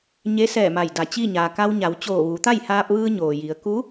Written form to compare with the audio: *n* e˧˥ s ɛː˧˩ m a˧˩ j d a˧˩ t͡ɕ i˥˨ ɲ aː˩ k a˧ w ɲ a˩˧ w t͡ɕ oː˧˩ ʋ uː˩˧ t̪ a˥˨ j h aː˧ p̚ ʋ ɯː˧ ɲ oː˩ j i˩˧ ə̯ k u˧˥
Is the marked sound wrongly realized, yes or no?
yes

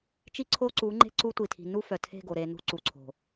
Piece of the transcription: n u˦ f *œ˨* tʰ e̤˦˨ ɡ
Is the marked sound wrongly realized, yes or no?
no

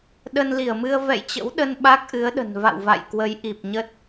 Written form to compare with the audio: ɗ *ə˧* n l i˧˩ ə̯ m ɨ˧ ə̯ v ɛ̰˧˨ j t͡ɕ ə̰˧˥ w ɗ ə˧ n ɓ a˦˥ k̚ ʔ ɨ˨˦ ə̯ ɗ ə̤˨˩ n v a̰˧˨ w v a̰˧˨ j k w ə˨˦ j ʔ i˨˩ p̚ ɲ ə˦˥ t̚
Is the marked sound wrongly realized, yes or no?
no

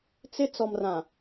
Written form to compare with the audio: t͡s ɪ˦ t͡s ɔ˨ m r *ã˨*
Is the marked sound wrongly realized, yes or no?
no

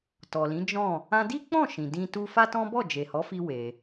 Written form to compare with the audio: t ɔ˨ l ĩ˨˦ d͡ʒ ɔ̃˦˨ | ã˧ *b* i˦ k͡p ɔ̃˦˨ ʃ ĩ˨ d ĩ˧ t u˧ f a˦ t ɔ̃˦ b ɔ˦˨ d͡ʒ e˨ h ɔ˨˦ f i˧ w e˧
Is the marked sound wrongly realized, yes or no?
yes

